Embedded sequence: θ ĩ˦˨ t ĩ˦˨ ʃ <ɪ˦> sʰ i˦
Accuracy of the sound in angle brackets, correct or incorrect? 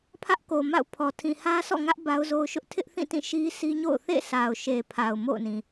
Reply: incorrect